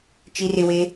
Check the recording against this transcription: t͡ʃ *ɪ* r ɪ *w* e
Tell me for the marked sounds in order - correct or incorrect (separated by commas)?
incorrect, correct